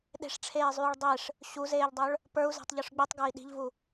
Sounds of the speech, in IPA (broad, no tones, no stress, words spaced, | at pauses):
ɗe̤ʂʈ͡ʂʰeːzˤyːɭ dˤeʂ | ɕuzeːʎdˤœɭ | pə˞u̯zɛ̤tˤʎʉʂ ɡ͡bitˤɡə˞i̯ ɗi̤ʎvu